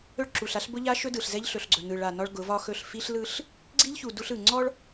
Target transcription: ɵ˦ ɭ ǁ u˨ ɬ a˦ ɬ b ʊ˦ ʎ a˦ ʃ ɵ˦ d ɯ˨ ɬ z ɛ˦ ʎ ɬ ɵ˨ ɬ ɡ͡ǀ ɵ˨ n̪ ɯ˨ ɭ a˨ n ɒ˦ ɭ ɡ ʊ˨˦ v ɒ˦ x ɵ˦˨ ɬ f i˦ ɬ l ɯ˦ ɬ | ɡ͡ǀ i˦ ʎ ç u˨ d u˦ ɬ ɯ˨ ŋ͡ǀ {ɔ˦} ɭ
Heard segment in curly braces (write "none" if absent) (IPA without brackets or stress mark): ɔ˦